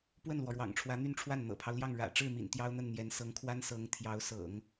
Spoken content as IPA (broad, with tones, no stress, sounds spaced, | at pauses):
p w ə˥˩ n l w ɔ˩ ɻ w ɑ̰˨˩ ŋ ʈ͡ʂʰ w ä˧˥ n̪ y˥˧ n ʈ͡ʂʰ w a˥˩ n n̪ ɤ̰˨˩ pʰ ɑ˦ ʊ̯ l j ɑ˥˩ ŋ ɻ ä̰˨˩ ʈ͡ʂ ɻ̩˥˩ m ḭ˨˩ n t̪ j ɑ˥ ʊ̯ n̪ ə˥˩ n n̪ j ɛ˧˥ n s ɤ˧˥ ŋ kʰ w a˥ n s ɤ˧˥ ŋ t̪ʰ j ɑ˧˥ ʊ̯ s ɤ̰˨˩˦ ŋ